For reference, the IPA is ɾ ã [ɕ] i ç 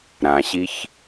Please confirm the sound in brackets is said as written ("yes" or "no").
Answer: yes